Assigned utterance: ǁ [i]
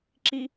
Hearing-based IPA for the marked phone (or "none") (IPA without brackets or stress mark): i